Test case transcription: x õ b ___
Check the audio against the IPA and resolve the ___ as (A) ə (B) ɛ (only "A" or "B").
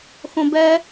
B